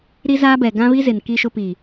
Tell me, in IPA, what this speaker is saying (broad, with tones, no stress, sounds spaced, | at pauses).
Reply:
ɾ i˦ z aː˦ b ɛ˨ ɡ ã˦ β i˦ z ɪ˨ n k i˦ ʃ ʊ˦ p i˨